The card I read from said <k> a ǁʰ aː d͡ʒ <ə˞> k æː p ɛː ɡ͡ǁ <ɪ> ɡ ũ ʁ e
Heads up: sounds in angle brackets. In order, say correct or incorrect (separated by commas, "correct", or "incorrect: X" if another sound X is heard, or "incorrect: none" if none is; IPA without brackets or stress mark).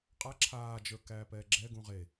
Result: incorrect: qʼ, correct, incorrect: ɛ